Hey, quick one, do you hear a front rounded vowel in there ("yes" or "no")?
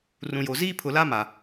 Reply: no